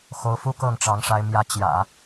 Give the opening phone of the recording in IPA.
x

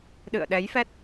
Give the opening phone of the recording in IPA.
ɗ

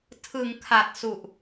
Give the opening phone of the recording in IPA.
tʰ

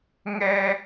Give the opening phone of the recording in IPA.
ŋ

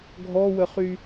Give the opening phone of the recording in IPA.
ɡʱ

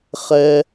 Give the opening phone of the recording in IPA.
χ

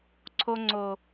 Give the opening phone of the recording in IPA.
ǀʰ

